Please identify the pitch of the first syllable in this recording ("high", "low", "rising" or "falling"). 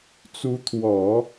rising